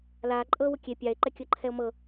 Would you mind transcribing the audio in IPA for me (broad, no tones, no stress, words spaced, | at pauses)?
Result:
laːǃʼɤːwʊ kʲe pʲae̯ǃɛ kʲɤǃʰɛo̯mɤ